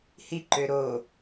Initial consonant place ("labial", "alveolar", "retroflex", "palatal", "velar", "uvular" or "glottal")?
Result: glottal